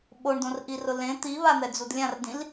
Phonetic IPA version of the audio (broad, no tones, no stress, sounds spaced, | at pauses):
ɓ o ɳ d õ r ʔ i r ʊ l ẽ t̪ i β a n̪ ɛ d͡z u d lʲ ã r d ĩ l